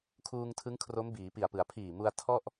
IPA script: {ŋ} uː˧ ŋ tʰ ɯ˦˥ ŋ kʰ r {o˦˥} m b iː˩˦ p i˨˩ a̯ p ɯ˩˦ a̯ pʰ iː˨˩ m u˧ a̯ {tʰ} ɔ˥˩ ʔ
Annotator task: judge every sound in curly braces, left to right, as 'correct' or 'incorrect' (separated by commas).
incorrect, correct, correct